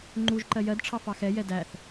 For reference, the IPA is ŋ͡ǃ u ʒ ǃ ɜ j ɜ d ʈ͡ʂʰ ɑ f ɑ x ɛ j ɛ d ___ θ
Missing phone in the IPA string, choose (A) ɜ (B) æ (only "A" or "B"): B